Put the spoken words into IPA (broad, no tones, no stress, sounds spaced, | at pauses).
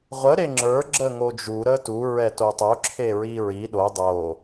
ʁʷ ə ɾ e ŋ͡ǁ ə˞ ɡ͡ǁ ə ŋ o d͡ʒ u ɾ ə t u ɹ ɛ t o tˤ o ǁʰ e ɹ i ɹ i ɗ o dˤ o